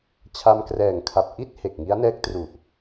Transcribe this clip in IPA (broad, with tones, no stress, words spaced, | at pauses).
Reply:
t͡ɕʰa˧mkrɛː˨˩ŋkʰa˨˩p̚ ʔi˥˩t̚ he˨˩k̚ŋi˦˥a̯ nɛː˦˥k̚tru˨˩ʔ